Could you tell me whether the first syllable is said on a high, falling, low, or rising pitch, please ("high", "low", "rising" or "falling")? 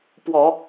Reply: low